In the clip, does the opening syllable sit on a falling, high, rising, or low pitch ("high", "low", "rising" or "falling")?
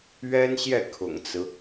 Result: high